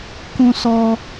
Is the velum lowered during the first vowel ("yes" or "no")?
yes